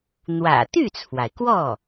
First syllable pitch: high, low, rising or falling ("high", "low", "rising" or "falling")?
low